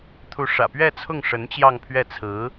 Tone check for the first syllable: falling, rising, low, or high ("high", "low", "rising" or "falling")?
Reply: rising